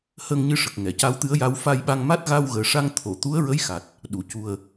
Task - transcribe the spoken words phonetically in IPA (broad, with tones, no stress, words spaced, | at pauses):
həː˧ŋɲɨ˧ʂə˨˩k̚ ŋɛ˨˩˨ca˧˥wt̪ɨ˧˥ə̯ja˧˥w fa˧jɓa˧ŋma˦˥t̚ ɣa˧wɣəː˨˩ʂa˧ŋ t̪ʰo˨˩˨ t̪u˧˥ə̯ɹə˧˥jxa˨˩t̚ | ɗu˨˩˨cu˨˩ə̯